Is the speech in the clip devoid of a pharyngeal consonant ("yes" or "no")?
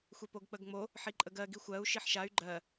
no